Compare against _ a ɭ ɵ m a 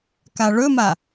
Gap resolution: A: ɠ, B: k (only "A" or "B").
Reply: B